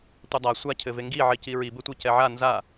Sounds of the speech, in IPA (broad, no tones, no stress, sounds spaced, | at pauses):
tʷ ɐ dˤ a sʷ a cʰ ɘ v e ŋ ɡ i ʕ i c i ɹ i b ɘ tʷ i c ɛ ʕ a n z a